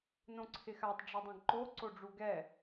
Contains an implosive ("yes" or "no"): no